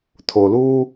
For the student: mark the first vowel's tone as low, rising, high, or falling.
low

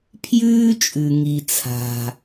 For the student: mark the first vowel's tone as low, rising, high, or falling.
high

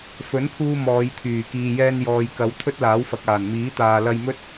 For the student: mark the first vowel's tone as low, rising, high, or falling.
rising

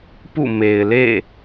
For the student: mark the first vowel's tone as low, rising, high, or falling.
falling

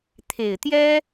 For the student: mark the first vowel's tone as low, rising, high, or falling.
low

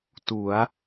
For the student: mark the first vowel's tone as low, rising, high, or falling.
rising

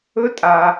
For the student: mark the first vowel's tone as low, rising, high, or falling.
high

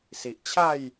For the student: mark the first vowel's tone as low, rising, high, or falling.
low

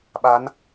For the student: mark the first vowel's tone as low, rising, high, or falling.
rising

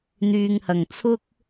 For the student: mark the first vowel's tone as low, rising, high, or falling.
low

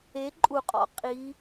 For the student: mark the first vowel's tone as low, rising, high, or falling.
rising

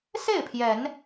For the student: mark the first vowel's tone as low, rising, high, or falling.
falling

